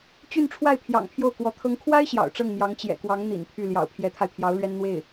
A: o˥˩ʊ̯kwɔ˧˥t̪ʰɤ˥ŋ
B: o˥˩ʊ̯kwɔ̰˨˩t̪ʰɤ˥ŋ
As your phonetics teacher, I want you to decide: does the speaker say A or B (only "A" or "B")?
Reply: A